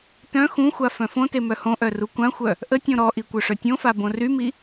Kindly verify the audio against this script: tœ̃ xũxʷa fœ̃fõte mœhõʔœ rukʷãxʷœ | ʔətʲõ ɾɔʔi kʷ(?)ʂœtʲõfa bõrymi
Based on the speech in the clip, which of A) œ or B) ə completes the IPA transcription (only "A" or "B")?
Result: A